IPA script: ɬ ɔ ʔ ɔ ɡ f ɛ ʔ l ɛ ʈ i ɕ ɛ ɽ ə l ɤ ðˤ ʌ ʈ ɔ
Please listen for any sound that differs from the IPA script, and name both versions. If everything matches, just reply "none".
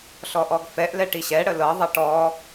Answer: none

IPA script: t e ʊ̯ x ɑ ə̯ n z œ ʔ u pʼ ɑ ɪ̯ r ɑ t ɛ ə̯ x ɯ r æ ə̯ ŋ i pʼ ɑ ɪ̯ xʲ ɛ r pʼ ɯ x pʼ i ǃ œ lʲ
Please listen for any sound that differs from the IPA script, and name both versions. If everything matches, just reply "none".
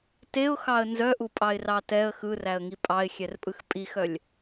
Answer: ǃ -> x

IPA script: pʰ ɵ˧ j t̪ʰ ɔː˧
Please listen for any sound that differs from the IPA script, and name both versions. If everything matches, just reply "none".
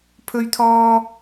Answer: j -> ɥ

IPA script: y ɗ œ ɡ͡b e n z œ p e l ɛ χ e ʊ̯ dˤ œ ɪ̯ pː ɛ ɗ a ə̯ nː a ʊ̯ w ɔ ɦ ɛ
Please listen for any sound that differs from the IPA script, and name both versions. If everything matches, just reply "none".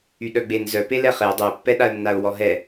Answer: none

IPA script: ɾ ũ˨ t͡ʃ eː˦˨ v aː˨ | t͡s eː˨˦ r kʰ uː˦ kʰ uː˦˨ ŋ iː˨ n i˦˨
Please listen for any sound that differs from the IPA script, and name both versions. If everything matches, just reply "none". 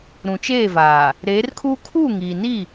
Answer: t͡s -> ɾ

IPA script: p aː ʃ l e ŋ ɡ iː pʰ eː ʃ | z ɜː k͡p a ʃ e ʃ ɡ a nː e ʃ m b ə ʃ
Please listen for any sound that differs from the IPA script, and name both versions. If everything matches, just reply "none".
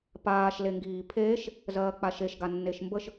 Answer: none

